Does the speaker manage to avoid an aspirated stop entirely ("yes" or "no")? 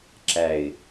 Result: yes